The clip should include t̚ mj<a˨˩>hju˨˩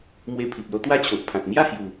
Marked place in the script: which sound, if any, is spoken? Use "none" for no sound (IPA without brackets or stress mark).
a˥˧